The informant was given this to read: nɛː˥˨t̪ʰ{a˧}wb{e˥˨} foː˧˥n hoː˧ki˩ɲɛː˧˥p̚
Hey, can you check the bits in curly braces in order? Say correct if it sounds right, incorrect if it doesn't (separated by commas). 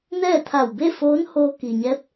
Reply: incorrect, correct